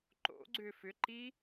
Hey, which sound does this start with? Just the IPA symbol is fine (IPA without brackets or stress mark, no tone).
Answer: ǃ